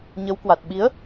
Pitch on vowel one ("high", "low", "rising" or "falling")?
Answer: rising